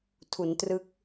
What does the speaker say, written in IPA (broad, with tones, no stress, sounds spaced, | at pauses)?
tʰ u˩˦ n t r ɯ˦˥ k̚